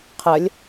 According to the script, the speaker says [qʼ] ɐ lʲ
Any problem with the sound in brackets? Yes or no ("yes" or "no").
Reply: yes